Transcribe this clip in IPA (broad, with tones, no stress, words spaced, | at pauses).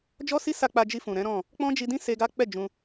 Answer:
d͡ʒɔ˦si˦sa˧ k͡pa˧d͡ʒi˧fũ˨ɾɛ̃˨˦ ɾɔ̃˦˨ | k͡pɔ̃˦d͡ʒi˧dĩ˦ se˧ɡa˦k͡pɛ˦˨ d͡ʒũ˧